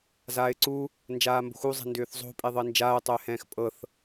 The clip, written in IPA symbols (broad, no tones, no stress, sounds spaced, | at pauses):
z aː ɪ̯ ǀ u | n d͡ʒ aː m b o̤ x u zˤ ɛ̤ n d ʏː θ zˤ o̤ pʼ e ðˤ ɤ ɪ̯ n d͡ʒ aː ʊ̯ tˤ ʏː h ɛ̃ː x pʼ ɤ θ